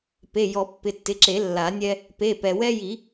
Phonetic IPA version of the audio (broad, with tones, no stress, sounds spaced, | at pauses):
p e˩˧˩ j ɔ˨˩˦ pː ɪ˩˧˩ tː ɪ˩˧˩ ǁ e˨˩˦ lː a˨˩˦ nʲ ɛ˦ | p e˩˧˩ p ɛ˩ w ɛ˦ j i˨˩˦